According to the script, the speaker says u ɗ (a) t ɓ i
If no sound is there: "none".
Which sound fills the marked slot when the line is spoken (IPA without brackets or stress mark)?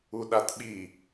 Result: a